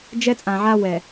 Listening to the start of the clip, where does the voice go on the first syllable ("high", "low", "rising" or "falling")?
high